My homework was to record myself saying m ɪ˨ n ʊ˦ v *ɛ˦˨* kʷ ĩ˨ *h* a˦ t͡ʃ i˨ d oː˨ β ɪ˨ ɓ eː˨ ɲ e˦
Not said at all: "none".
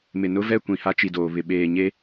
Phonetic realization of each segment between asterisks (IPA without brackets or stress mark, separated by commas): ɛ˦˨, h